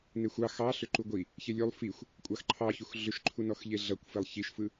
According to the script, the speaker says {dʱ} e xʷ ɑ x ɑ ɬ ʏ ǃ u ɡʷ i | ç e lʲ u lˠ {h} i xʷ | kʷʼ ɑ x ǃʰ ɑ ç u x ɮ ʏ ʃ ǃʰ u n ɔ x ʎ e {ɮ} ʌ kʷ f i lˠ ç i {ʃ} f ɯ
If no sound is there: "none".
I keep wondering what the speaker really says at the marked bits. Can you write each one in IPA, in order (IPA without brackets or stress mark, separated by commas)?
n, f, ɮ, ʃ